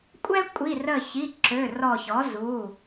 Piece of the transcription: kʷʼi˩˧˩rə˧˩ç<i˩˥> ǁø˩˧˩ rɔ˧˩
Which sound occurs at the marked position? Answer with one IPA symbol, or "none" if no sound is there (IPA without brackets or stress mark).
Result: i˩˧˩